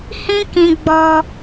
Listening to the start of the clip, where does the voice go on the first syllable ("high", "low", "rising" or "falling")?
high